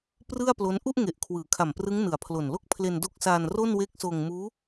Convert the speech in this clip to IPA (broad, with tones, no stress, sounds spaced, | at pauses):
p r ɯ˥˩ a̯ p l o˦˥ n ʔ u˥˩ ʔ ŋ e˨˩ ʔ kʰ w ɯː˩˦ kʰ a˨˩ m p r ɯ˦˥ ŋ n ɯ˨˩ a̯ pʰ l o˨˩ n l o˥˩ k̚ pʰ l e˧ n d o˦˥ k̚ s aː˧ n r o˥˩ n w e˦˥ k̚ s oː˧ ŋ m uː˦˥